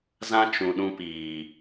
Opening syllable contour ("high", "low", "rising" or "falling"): high